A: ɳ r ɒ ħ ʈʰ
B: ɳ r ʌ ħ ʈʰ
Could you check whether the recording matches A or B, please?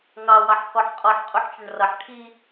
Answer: B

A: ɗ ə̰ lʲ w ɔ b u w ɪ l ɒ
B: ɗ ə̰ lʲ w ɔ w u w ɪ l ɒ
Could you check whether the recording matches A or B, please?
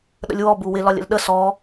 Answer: A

